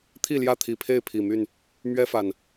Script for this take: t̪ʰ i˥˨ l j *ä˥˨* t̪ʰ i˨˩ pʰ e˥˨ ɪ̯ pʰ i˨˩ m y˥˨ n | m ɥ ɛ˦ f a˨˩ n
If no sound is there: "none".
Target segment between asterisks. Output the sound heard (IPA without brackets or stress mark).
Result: ä˥˨